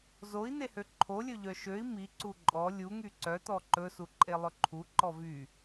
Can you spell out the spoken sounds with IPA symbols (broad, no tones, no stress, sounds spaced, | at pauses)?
z o i̯ n̪ e h ø ǃʰ o lʲ ɵ ʎ œ ʃ ø i̯ m i ǀ u ǃʼ ɔ lʲ u ŋ y ǀ œ t̪ ɔ ǃ ɵ s u ǃʼ e lˠ ɵ ǃʰ u ǃ ɔ v y